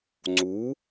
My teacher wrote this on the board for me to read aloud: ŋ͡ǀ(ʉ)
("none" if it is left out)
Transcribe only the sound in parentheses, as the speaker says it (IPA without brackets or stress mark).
u